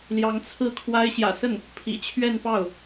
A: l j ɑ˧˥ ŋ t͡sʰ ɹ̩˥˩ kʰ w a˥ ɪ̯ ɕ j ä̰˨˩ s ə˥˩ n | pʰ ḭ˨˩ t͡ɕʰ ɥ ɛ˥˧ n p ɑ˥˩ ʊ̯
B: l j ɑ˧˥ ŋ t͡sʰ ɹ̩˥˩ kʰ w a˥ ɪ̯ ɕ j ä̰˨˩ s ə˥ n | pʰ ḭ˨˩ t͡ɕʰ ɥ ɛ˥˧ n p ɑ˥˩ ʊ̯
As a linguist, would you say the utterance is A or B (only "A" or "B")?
A